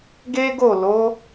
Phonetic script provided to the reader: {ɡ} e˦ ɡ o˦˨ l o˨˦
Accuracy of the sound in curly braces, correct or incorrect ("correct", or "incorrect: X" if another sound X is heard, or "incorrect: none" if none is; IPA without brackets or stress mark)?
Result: correct